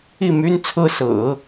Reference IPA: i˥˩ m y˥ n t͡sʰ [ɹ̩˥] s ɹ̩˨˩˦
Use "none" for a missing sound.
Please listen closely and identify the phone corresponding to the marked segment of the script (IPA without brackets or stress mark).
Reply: ɹ̩˥